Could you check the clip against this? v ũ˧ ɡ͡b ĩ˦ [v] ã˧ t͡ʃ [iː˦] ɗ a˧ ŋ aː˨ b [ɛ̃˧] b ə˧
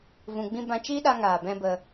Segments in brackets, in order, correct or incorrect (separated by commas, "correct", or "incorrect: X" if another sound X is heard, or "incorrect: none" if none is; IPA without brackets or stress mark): incorrect: b, correct, correct